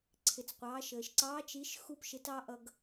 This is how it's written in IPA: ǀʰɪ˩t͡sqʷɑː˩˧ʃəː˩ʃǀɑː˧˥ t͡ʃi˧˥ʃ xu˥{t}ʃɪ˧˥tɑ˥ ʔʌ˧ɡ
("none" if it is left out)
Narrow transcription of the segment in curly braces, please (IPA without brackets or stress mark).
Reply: p